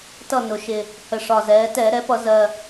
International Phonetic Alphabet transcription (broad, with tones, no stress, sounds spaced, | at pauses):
t ʌ˥˨ n ʊ˩˧ ʃ ɪ˨˩ | h ə˨˩ ʂ ɒ˨˩ z ɛː˩˧ t ɛː˧˩˧ ɾ ɛ˩˥ p ʌ˧˩˧ z ɜː˨˩